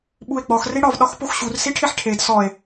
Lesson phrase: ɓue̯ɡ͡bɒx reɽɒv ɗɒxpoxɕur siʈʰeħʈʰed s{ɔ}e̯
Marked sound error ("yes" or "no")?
no